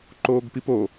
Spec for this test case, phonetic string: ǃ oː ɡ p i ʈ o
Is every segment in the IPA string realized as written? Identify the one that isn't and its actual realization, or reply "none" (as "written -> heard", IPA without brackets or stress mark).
ʈ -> p